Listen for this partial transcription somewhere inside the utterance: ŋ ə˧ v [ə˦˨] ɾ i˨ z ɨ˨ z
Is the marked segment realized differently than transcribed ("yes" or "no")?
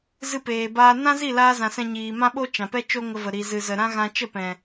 yes